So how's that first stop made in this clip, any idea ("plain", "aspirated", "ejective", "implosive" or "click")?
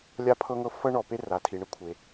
aspirated